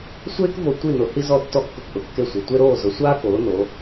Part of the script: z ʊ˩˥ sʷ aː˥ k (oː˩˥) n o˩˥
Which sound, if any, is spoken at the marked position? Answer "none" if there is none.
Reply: oː˩˥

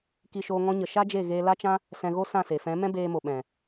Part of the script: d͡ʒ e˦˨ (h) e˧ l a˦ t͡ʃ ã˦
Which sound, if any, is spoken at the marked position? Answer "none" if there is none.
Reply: ɣ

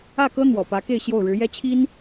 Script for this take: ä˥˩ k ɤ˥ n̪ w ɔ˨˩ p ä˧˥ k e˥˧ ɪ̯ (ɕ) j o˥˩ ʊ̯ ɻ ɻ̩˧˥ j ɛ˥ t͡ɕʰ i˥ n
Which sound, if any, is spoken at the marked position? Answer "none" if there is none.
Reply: ɕ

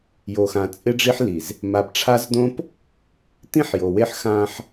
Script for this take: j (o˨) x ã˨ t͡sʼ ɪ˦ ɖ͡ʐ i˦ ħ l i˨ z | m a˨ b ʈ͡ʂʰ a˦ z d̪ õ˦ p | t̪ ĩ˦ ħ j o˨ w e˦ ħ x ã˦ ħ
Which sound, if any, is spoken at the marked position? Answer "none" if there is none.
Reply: o˨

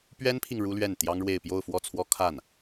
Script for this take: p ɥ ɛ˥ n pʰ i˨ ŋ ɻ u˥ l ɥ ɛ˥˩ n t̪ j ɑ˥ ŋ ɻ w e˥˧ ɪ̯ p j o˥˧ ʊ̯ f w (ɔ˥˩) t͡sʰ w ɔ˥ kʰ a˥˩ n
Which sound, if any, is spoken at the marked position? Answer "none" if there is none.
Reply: ɔ˥˩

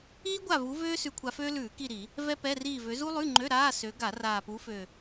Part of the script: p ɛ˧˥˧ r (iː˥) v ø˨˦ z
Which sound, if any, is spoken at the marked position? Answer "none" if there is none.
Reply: iː˦˨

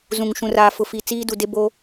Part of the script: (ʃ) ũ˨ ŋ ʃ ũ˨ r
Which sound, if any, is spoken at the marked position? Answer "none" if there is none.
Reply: z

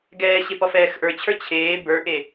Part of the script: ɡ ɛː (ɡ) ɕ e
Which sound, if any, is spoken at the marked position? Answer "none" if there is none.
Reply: none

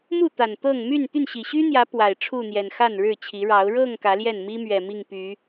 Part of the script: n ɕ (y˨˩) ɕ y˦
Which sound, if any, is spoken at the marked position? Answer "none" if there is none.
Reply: i˨˩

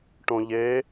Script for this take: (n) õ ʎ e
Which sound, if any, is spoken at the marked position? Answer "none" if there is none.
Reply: ʈ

